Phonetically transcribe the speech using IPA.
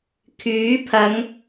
kʰ yː˨˥ pʰ ɐ˨˧ ŋ

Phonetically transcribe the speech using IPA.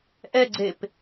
ʔ ɛ ɡ͡ǀ e p

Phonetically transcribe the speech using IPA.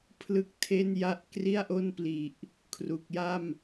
pʰ l ɯ˥˩ k̚ tʰ e˥˩ n j a˥˩ ʔ k r i˥˩ a̯ ʔ o˥˩ n p l i˨˩ ʔ | kʰ r u˨˩ k̚ j a˥˩ m

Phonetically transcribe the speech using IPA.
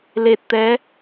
l e˨˩ t̚ t̪ ɛ˨˦

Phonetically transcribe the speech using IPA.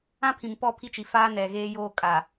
ã˦ pʰ ĩ˨ m p ɔ˦ pʰ i˦ t͡ʃ i˨ f aː˦ n ɛ˨ ɣ eː˦ j oː˦ kʼ aː˨

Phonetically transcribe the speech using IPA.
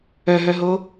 œ ɦ œ ɦ o

